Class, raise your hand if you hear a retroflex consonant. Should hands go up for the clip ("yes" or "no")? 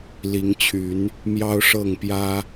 yes